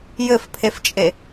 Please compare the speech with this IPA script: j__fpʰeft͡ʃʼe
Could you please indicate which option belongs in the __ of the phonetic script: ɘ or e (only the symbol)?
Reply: ɘ